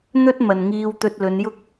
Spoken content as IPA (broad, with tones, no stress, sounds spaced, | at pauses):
n̪ ɵ˥ t̚ m ɐ˨ n ŋ iː˧ w t̪ ɵ˧ t̚ l ɵ˨˧ n j ʊ˥ k̚